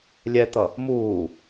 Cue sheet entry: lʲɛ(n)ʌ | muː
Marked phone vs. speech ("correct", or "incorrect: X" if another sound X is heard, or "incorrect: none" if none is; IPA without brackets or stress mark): incorrect: t̪